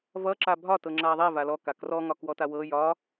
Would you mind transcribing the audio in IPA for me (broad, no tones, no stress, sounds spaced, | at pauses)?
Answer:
v ʌ ǁ a bʱ ɒ t ɤ ŋ͡ǁ a ðˤ e v a l ɔ k a k r ɔ ŋ ɒ k w ɔ t a w ɤ j ɒ